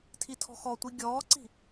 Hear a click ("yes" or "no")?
yes